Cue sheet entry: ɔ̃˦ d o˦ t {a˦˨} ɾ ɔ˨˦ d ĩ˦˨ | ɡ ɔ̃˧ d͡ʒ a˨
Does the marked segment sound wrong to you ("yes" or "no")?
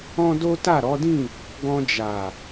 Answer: no